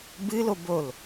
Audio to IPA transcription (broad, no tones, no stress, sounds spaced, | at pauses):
b ɨ l o b o l